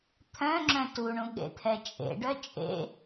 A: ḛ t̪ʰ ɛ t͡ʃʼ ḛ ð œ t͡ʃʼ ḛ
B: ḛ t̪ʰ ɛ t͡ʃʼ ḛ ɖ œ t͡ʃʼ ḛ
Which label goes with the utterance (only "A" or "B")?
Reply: B